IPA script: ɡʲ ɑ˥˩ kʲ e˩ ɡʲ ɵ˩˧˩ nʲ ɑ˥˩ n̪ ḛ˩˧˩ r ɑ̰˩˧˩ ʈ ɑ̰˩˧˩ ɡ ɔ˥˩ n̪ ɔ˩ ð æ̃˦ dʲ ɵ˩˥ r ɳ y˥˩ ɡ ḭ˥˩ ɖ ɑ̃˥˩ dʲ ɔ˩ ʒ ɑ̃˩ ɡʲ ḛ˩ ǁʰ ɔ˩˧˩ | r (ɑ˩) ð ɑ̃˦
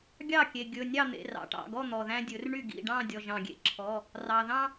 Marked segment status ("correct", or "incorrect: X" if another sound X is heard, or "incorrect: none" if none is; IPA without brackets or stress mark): correct